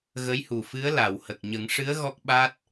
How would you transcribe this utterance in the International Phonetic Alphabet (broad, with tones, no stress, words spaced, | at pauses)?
ɣə˧˥jhu˨˩fɨ˧˥ə̯ la˨˩˨whə˨˩k̚ɲə˨˩˦ŋ ʂɨ˧˥ə̯ ɣɔ˦˥k̚ɓa˦˥t̚